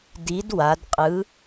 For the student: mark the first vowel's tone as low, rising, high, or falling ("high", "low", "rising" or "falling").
rising